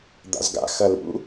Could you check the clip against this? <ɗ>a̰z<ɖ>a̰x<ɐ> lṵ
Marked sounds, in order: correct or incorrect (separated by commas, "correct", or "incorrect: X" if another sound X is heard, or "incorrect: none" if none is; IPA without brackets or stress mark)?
incorrect: d̪, incorrect: ɡ, correct